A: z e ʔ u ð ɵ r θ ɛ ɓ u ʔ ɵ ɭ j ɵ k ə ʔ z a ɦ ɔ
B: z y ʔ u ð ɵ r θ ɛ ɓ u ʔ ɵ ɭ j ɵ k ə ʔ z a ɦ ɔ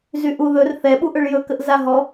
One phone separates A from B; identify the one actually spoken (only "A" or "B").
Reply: B